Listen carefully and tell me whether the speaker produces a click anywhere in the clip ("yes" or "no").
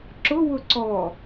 yes